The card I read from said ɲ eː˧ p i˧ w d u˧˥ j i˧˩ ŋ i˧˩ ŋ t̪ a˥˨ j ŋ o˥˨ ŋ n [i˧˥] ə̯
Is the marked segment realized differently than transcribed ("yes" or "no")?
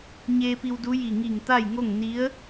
no